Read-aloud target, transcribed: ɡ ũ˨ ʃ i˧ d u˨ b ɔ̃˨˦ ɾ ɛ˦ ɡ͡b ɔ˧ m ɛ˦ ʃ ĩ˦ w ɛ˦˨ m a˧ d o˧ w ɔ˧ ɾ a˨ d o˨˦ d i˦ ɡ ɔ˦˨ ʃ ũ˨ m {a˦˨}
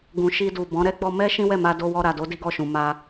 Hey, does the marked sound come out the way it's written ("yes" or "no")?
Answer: no